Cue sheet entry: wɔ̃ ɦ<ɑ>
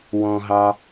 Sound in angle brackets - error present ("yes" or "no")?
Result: no